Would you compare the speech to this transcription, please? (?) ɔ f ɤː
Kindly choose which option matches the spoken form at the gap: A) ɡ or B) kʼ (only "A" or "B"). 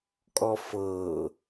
B